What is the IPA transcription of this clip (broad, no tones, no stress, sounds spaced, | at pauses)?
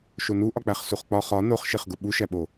ʃ o n u ʔ ɒ k͡p æ χ s u χ k͡p ɒ χ ɒ n o χ ʃ e χ ɡ u ɓ u ʃ æ ɓ o